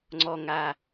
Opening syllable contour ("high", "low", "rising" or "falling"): low